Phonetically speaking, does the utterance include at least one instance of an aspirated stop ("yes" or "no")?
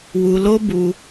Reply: no